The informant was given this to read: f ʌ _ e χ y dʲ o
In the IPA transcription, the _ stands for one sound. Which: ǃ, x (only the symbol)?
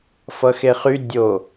x